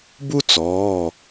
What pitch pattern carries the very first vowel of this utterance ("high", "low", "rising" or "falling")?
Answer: high